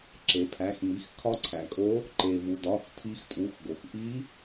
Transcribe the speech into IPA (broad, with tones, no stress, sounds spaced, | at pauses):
ǁ e˩ pʰ æ˩˧˩ x m i˩˧˩ x kʰ ɒ˧˥ ǀʰ æ˩ kʼ o˧˥ | ǃ e˩ v u˩ d ɒ˩˧˩ x tʰ i˧˥ x tʼ u˩˧˩ x ɡ o˩ x ʔ i˧˥